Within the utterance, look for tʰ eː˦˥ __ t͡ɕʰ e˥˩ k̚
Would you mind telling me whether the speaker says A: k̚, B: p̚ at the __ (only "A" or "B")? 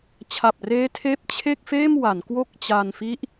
B